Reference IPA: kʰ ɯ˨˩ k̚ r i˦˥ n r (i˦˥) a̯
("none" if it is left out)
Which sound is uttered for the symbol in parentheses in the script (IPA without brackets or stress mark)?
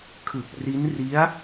i˦˥